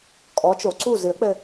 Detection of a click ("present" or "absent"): present